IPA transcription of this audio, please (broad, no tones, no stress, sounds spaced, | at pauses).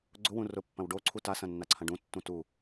ɡ͡ǀ ʊ w ũ r ʊ pː ɐ̃ w ɖ o ǀʰ u t a s ɐ̃ nː a ǀʰ ɐ̃ ɖ ũ tː ũ t u